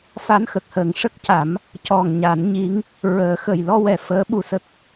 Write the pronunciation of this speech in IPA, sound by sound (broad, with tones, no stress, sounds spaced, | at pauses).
f a˧˥ n x ə˨˩ k̚ h əː˨˩ ŋ ʂ ə˦˥ k̚ c a˨˩˦ m | c ɔ˨˩ ŋ ɲ a˨˩˦ n ɲ i˧˥ ŋ | ɹ əː˨˩˦ x ə˨˩ j l ɔ˧ w ɛ˨˩ f əː˧˥ ɓ u˧ s ə˦˥ k̚